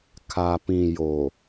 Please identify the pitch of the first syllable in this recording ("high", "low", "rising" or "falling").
low